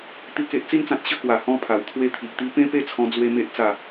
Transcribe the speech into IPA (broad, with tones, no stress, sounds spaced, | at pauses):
t̪ i˨˩ k e˨ ʔ t͡s i˧ n t͡s ã˨ t̚ ɕ ə˧ k w a˨˩ h ɔ̃˧ pʰ a˨˩ w t̪ʰ w e˧ t̪ʰ i˨ ʔ t̪ i˧ p ẽ˦ p e˥˧ t͡sʰ ɔ̃˧ d͡z w e˧ m e˦ ʔ t͡s a˥˧